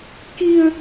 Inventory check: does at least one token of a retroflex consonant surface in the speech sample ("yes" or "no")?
no